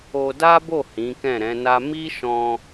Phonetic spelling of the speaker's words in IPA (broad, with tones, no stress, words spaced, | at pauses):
o˧da˦bo˦˨ hĩ˨˦kɛ̃˦˨ɾɛ̃˨˦na˦ mi˦ʃɔ̃˧